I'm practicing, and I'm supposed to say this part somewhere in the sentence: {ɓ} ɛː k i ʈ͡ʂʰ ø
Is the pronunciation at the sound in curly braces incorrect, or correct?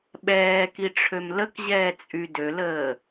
correct